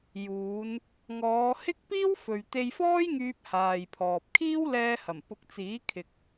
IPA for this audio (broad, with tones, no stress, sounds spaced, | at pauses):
j uː˨˧ n | ŋ ɔː˨˧ h ɪ˥ k̚ p iː˥ w f ɵ˨ ɥ t̪ e˧ j f ɔː˥ j ŋ yː˧ p̚ h aː˨ j pʰ ɔː˨ p̚ kʰ iː˥ w l ɛː˧ h ɐ˨˩ m p ʊ˨˥ k̚ t͡s iː˨˥ kʰ ɪ˨ k̚